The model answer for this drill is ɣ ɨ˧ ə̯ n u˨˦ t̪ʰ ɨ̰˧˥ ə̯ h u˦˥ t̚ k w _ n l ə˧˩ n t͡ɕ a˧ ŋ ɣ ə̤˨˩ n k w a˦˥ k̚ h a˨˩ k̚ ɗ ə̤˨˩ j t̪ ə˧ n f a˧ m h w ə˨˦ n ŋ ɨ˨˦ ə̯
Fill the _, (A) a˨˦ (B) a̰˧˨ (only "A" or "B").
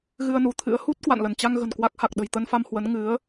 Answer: B